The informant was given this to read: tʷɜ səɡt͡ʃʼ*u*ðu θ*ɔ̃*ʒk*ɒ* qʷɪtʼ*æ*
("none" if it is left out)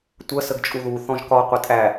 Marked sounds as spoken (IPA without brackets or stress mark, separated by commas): u, ɔ̃, ɒ, æ